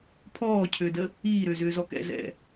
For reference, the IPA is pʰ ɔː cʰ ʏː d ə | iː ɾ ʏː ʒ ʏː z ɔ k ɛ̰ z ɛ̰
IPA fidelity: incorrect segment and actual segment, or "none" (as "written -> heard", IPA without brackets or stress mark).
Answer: ʒ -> z